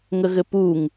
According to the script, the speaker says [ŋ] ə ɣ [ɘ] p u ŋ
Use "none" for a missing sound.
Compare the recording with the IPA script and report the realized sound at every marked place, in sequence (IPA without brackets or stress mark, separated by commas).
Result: ŋ, ɘ